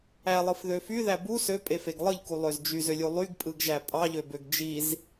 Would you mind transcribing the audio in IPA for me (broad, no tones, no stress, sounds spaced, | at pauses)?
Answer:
æ lˠ ɯ f ð ø f y ð æ b u s ø pʼ e f e ɡ lˠ ɯ ʎ k u lˠ ø z d͡ʒ y z ø lʲ u lˠ y ɡ pʼ ɯ ɡ ʒ æ pʼ ɑ ʎ ø b ø ɡ d͡ʒ i z